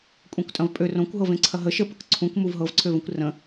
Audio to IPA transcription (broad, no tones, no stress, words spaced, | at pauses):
kʷʼẽkʷtʼɐ̃vpʼør õkʷɦɤv ẽǀʰɐɦə ʃəpək ǀʰũk muvɦɤvǀʰøvə̃kʷ rə̃